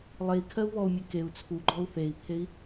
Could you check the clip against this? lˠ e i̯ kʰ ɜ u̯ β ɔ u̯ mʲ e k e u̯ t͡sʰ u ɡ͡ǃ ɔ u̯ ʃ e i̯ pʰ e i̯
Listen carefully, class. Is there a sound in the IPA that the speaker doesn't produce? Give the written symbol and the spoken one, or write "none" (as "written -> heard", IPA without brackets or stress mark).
ʃ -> θ